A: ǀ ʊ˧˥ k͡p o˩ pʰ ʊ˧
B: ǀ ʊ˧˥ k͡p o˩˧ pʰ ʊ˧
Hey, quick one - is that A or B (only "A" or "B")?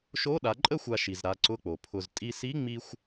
A